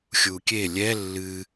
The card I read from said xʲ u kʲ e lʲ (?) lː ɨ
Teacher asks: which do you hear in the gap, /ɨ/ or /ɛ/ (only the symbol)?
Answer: ɛ